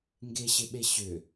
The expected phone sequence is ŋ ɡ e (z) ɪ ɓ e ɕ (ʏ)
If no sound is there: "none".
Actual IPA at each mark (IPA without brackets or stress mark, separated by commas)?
ɕ, ʏ